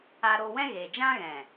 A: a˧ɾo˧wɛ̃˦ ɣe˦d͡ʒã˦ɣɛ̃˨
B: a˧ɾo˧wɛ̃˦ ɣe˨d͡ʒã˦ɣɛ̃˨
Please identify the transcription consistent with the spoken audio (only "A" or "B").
B